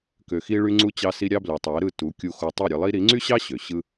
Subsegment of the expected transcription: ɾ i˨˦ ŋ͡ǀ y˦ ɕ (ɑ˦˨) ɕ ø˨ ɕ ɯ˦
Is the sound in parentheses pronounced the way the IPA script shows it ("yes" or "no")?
no